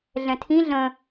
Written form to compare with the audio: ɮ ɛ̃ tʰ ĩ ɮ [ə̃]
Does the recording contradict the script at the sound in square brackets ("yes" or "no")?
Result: no